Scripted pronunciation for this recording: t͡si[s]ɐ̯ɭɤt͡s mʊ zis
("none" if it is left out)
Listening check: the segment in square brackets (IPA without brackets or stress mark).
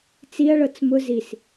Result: none